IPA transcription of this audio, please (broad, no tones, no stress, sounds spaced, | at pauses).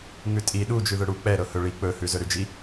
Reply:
ŋ ʉ tʼ i ɗ u d͡ʒ ʉ ð ɵ ɽ u k͡p ɛ ɾ ɤ h ɵ ɭ i k͡p ɵ h ʉ z ɵ ɾ ʉ d͡ʒ i